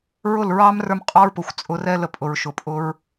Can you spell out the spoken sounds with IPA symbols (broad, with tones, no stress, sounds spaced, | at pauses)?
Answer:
ɹ ʊ˦˨ l ɹ ɑ˦ m r ə˞˦ m qʼ ɑ˦ ɹ p ʊ˨ xʷ t͡sʼ ʊ˧ r ɛ˦ l ə˧ pʼ ʊ˨ ɹ ʃ ʊ˨ pʼ ʊ˦ ɹ